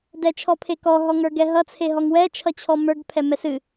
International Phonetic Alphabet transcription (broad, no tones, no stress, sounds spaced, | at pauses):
d ɛ t͡ʃʰ ɔ pʰ e k ɔ ɦ ɔ ŋ ə˞ ɡ ɛ ɦ ʌ t͡sʰ e ɦ ɔ ŋ w ɛ t͡ʃʰ ʌ t͡ɕʰ ɔ m ə˞ ɡ pʰ ɛ m ɛ s ɨ